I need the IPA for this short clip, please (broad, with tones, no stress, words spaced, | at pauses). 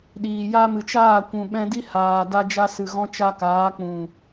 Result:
ɗiː˨ja˦mɨ˨ t͡ʃaː˦˨kʷũ˨ɓɛ̃˧di˦ haː˨ da˦d͡ʒa˦ sɨ˨ɣɔ̃˦t͡ʃa˦kaː˨˦ k͡pũ˨